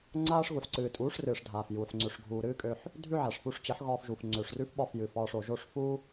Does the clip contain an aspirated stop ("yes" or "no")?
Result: no